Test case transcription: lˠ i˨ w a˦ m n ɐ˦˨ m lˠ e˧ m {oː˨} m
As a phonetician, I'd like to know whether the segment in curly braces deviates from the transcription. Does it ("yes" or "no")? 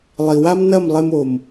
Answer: yes